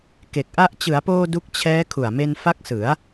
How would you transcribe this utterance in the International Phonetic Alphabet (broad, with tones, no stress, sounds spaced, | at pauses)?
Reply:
k e˨˩ k̚ ʔ a˥˩ ʔ t͡ɕ ɯ˩˦ a̯ p oː˧ d u˦˥ k̚ t͡ɕʰ ɛː˦˥ kʰ u˨˩ a̯ m e˧ n f a˦˥ k̚ s ɯ˩˦ a̯